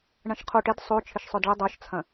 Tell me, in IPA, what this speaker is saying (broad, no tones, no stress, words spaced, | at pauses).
ɳɐ̃ʃqʰoʈ ɪd sˤo t͡ʃʰɪʃsˤœdɭɪ dˤœʃt͡sʰɐ̃